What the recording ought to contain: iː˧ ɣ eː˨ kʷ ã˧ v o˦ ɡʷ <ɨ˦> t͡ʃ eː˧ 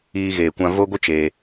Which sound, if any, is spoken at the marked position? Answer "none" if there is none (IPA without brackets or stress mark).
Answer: ɨ˦